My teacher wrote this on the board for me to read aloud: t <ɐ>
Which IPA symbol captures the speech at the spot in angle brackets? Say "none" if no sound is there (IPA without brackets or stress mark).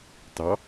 ɑ